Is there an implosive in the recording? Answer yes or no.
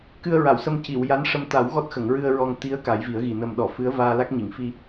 yes